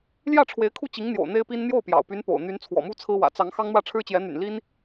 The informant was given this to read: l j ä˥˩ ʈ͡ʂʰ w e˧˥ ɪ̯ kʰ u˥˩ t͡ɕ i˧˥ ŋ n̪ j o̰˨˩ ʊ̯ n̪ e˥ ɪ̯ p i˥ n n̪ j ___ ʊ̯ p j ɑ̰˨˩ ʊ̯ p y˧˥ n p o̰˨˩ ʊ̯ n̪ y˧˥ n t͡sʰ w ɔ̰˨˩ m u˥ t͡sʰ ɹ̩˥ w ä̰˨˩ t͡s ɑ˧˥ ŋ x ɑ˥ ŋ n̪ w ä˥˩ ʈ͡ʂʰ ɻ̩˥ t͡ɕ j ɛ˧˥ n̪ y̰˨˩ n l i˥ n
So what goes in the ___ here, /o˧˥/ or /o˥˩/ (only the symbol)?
o˥˩